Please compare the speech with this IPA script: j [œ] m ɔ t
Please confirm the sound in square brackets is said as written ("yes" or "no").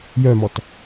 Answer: yes